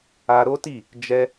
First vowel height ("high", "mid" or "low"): low